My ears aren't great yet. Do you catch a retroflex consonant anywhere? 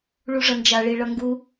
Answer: yes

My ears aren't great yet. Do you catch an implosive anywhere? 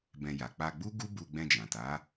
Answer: no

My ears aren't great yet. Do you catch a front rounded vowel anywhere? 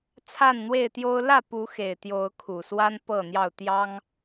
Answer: no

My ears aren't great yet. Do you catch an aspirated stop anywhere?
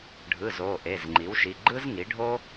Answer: no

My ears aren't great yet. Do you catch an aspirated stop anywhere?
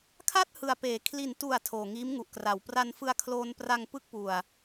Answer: yes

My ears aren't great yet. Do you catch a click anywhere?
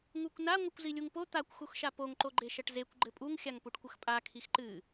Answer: yes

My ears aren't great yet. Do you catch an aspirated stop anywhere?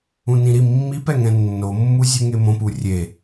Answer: no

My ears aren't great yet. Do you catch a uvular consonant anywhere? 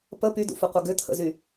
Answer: yes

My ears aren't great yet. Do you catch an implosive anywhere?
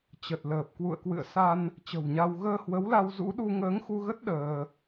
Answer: yes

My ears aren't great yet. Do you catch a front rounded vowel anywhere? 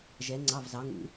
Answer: no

